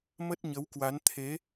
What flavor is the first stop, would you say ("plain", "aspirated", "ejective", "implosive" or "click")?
plain